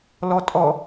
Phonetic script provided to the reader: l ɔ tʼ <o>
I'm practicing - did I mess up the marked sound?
yes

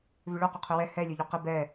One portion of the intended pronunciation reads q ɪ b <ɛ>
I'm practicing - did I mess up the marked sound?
no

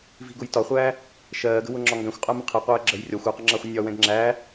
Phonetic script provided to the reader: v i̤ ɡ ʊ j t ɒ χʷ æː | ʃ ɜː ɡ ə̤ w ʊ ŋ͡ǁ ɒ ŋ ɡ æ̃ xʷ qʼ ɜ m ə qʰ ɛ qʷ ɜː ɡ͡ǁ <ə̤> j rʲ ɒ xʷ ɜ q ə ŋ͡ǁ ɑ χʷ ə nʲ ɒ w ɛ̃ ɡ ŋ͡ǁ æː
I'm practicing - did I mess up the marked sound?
yes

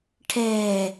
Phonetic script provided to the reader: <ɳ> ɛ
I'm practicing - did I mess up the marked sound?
yes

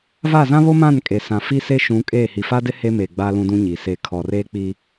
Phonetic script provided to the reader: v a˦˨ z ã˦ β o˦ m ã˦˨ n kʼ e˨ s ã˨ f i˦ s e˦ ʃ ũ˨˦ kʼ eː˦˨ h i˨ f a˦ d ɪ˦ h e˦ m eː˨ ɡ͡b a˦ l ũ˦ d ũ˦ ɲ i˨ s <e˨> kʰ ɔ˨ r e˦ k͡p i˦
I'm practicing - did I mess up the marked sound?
no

